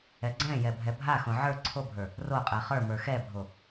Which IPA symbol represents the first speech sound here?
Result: ɛ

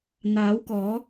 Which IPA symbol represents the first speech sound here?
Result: n̪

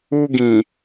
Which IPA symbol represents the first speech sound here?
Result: u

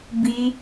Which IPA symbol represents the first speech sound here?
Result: b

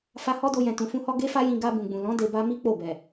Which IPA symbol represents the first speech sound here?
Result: f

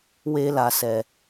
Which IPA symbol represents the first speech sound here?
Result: w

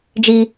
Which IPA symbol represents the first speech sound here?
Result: d͡ʒ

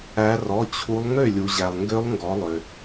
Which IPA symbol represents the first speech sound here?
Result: æ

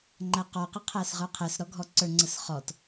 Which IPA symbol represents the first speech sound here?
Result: ŋ͡ǃ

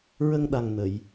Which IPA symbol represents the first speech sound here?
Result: ɹ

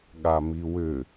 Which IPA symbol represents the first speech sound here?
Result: ɠ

